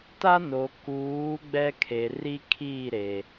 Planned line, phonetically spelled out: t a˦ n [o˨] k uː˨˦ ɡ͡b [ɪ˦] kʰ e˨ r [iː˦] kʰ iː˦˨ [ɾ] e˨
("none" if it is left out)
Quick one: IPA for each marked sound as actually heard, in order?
o˨, ɛ˦, i˦, ɾ

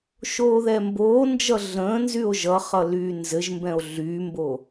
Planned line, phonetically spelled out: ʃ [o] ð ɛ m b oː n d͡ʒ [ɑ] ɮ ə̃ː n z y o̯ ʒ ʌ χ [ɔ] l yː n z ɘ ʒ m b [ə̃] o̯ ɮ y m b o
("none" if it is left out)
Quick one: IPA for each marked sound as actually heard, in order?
oː, ʌ, ʌ, ɛ̃

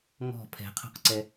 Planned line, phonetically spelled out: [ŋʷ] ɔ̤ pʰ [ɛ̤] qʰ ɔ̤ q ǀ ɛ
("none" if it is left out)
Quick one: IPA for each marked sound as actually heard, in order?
ŋ, ɛ̤

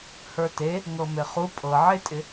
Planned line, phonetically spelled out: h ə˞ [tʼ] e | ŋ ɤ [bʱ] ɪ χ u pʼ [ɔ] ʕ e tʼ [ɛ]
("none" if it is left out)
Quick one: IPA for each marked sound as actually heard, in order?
t, m, ɤ, ɪ

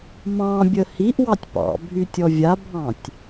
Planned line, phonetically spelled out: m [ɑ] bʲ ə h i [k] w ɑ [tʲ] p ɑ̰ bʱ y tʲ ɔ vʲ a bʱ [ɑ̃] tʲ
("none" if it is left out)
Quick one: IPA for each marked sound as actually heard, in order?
ɑ̃, ʔ, tʲ, ɑ̃

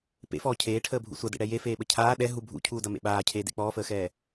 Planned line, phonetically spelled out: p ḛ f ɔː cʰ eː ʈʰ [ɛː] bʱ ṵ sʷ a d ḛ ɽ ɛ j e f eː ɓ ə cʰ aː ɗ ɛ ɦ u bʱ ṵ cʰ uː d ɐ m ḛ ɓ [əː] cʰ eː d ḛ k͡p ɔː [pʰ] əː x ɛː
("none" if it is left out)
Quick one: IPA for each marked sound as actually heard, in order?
əː, aː, f

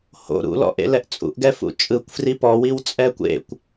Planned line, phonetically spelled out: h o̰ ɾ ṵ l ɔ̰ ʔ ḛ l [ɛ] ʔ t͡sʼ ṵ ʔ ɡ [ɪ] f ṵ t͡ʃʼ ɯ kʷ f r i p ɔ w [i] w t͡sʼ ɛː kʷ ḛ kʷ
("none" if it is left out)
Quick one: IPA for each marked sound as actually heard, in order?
ɛ, ɛ, i

